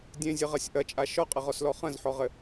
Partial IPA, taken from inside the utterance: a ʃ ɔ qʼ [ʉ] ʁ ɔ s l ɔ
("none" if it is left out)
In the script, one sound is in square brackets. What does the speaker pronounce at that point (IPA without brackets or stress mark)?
ɘ